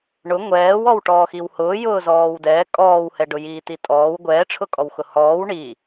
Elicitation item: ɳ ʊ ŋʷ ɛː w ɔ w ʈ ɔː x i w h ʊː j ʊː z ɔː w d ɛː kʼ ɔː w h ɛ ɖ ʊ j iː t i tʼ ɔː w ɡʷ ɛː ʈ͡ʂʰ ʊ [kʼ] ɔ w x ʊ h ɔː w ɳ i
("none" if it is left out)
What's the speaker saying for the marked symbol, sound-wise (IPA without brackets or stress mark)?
kʼ